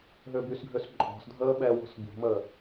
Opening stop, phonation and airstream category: plain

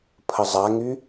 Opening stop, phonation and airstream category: aspirated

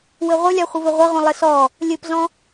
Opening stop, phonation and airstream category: plain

